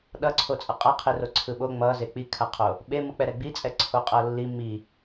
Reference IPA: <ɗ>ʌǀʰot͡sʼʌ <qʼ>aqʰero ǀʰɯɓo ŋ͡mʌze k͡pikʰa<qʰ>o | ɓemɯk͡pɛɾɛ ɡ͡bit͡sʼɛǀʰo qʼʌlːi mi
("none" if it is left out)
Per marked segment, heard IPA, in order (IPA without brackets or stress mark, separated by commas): ɗ, qʼ, qʰ